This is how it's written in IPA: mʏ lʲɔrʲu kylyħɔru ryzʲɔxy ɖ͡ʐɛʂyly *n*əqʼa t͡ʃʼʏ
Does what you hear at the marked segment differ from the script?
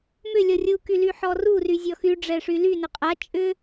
no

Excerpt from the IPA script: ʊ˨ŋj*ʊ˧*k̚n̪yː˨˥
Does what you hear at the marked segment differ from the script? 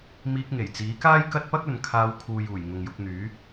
no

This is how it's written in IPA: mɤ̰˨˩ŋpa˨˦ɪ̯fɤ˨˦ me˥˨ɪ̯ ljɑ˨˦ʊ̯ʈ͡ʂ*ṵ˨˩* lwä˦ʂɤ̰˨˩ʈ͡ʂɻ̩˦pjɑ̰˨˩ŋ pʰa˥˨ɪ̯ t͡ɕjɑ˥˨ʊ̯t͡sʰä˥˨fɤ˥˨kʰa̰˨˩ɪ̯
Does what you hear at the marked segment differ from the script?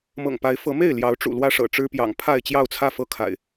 no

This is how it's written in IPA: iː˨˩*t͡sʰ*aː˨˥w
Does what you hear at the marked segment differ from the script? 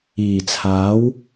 no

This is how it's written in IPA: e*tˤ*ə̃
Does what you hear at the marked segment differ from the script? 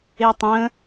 no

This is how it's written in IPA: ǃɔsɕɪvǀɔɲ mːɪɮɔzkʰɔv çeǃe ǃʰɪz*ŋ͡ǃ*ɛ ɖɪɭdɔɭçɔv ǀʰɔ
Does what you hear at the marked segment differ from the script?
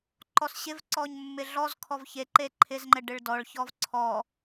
no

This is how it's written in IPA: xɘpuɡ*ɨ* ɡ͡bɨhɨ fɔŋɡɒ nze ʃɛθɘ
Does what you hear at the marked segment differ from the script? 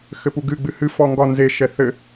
no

